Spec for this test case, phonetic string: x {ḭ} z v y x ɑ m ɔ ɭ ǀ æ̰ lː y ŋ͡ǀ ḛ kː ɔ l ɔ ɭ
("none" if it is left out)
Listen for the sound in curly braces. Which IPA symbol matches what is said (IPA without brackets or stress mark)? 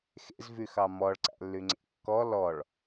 ḛ